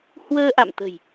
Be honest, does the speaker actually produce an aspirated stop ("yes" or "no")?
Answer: no